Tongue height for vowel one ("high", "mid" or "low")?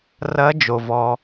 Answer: low